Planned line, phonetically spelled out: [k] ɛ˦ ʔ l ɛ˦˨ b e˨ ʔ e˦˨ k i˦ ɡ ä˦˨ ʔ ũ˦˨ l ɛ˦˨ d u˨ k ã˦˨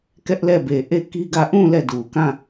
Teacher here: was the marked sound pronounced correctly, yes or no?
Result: yes